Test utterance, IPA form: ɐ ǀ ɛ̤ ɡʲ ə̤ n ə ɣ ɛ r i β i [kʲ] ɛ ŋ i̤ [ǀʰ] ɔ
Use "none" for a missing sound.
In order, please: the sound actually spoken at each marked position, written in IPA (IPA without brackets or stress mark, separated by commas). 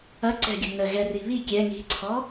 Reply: kʲ, ǀʰ